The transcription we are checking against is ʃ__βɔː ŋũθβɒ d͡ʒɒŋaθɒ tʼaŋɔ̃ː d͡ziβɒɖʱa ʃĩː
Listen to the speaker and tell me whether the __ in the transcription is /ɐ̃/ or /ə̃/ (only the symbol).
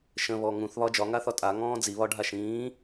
ə̃